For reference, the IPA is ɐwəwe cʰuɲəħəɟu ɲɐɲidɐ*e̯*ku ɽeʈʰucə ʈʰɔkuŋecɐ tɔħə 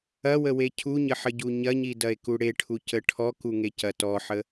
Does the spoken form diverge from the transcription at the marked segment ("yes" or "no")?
no